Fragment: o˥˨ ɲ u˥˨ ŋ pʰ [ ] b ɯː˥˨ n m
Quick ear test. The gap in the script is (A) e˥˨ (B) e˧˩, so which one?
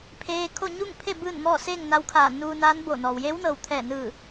A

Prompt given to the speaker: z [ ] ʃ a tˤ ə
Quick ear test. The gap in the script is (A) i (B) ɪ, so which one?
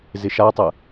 B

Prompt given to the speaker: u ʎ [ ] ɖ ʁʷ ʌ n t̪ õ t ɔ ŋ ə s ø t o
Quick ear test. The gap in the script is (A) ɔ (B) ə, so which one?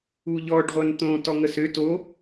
A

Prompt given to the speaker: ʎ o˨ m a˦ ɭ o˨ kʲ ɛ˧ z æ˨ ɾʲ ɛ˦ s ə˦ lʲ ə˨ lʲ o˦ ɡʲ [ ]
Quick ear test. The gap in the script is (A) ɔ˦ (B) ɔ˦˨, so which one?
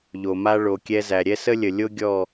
B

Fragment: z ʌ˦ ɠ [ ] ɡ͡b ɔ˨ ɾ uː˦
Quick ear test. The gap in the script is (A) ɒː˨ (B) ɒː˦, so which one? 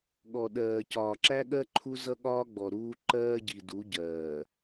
B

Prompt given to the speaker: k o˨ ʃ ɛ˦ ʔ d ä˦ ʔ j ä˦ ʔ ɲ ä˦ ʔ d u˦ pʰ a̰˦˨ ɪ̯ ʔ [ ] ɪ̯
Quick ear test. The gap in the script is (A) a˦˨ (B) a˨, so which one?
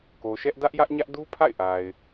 B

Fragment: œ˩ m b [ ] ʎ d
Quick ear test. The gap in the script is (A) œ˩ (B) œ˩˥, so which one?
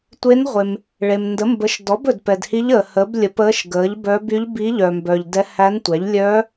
A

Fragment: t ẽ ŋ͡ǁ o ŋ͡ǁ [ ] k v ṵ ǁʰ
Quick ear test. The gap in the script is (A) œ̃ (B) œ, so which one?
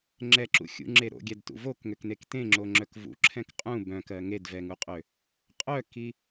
B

